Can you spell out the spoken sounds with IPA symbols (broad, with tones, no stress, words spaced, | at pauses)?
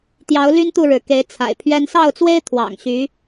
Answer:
t̪jɑ˧˥ʊ̯ly˥n t̪u˥˩ɻɻ̩˩ke˧˥ɪ̯ t͡sʰa̰˨˩ɪ̯pʰɥɛ˥n sɑ˥˩ʊ̯t͡swe˥ɪ̯ t̪ʰwɑ̰˨˩ŋɕy˧˥